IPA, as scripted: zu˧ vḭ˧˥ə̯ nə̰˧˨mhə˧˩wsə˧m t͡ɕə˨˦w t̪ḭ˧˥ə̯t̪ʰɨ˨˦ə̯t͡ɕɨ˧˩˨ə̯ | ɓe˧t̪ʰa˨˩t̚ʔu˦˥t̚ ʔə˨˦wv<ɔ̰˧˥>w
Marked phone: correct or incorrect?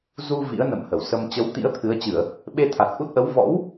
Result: correct